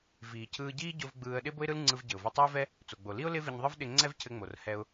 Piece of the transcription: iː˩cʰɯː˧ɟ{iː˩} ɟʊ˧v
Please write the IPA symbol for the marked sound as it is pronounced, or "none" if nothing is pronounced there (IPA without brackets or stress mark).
iː˥